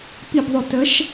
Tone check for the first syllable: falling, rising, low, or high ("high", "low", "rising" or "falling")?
low